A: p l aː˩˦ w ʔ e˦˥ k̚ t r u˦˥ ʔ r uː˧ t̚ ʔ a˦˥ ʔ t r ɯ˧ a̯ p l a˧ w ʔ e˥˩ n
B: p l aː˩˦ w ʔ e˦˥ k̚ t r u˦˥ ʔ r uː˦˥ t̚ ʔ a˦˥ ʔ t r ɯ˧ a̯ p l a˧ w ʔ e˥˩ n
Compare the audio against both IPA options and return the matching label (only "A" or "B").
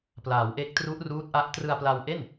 B